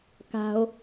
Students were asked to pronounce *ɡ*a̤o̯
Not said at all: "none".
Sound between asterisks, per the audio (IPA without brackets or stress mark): k